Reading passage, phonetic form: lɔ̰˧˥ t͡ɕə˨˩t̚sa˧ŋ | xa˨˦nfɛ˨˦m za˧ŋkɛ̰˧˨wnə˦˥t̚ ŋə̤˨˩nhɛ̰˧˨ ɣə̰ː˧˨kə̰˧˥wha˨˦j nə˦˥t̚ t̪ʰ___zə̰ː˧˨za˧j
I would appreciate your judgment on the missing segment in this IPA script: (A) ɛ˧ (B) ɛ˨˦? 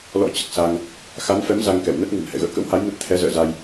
B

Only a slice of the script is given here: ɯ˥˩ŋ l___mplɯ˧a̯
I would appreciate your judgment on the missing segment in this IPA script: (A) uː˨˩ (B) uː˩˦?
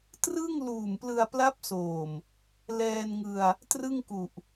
A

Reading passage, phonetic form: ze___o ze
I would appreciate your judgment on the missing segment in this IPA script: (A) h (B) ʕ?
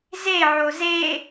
B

